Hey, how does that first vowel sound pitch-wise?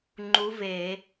rising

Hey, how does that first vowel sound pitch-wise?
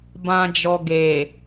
low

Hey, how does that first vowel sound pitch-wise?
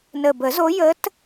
low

